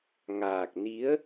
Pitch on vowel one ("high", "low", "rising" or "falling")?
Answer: low